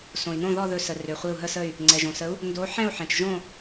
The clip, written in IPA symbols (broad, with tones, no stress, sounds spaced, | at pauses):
s õ˩ i̯ n õ˥˨ ð ɔ˥˨ ð ɵ˧˩ s ə˩ r ø˩ χʷ i˧˩ u̯ ɦ ə˥˨ s ə˥˨ y̯ | ŋ͡ǀ ɛ˩ ʒ õ˩ s ə˨˥ u̯ | n d o˨˥ ħ ɛ̃˥˨ u̯ ħ ɛ̃˩ t͡ʃ ʒ õ˥˨